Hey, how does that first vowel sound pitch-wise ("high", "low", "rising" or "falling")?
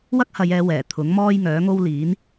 high